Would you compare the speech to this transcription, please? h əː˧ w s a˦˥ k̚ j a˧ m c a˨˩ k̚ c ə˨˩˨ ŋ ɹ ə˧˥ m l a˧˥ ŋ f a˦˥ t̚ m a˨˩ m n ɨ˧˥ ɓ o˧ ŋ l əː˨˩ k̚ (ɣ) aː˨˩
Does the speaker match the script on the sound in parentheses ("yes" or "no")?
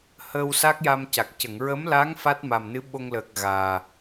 yes